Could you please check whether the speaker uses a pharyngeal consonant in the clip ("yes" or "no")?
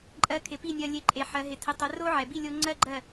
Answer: yes